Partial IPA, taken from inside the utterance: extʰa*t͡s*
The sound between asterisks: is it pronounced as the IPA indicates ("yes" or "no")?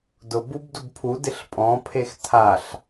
no